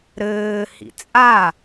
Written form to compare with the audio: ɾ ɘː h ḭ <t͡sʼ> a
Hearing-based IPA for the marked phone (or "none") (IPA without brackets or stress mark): t͡sʼ